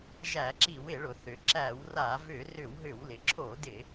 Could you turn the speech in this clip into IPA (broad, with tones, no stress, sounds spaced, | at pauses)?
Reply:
ʒ æ˧˩˧ ǁ i˧˩˧ w ɪ˧˩˧ ɭ ʊ˩ θ ʏ˩ ǁ æ˧˩˧ w r a˧˩˧ v ʏ˧˩˧ r ʏ˧˩˧ w ɦ ʏ˧˩˧ w l ɪ˩ ǁʰ o˧˩˧ d ɪ˧˩˧